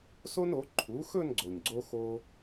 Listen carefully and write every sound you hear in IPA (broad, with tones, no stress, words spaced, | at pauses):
so˥no˩˥ ǃʰu˩˥xɵ˥˧n ɡ͡ǀo˨˩ɲɡ͡ǀo˥ xo˥